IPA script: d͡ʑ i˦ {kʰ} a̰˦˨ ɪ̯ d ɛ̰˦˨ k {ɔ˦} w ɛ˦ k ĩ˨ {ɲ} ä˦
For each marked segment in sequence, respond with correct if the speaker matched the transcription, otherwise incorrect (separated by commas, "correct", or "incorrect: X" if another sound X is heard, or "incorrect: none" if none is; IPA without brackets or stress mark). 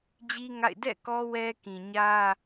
incorrect: ŋ, correct, correct